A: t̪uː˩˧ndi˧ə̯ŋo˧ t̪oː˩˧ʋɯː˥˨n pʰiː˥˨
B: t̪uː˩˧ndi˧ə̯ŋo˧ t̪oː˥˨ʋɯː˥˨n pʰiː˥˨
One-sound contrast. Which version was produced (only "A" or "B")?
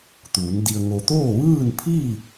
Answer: B